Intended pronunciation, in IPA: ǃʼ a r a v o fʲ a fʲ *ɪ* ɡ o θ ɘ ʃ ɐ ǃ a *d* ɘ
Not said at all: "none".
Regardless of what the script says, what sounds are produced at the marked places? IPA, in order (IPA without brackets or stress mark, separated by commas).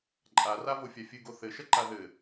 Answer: ɨ, ð